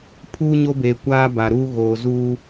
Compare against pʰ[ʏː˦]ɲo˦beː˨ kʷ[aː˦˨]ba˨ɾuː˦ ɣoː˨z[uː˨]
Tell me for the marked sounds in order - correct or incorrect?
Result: incorrect: uː˦, incorrect: aː˦, incorrect: uː˦

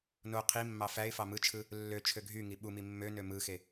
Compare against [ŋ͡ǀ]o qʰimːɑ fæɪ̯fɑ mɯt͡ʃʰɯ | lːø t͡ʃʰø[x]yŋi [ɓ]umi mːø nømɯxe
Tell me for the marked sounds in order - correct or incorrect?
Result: incorrect: n, incorrect: ɡʱ, correct

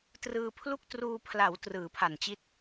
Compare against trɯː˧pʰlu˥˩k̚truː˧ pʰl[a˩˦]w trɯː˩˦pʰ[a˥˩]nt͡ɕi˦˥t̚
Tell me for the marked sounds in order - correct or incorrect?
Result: correct, incorrect: a˨˩

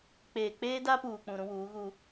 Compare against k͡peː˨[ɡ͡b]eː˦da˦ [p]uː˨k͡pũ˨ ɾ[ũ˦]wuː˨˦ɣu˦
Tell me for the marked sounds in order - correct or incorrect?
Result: incorrect: k͡p, correct, correct

